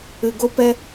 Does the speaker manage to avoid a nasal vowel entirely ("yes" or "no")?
yes